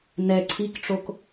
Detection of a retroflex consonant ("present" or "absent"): present